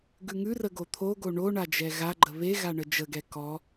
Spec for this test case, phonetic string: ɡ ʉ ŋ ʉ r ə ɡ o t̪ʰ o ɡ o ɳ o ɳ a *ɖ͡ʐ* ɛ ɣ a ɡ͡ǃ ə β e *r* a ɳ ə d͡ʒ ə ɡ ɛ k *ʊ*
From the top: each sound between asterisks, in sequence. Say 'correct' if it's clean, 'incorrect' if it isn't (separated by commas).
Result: incorrect, incorrect, incorrect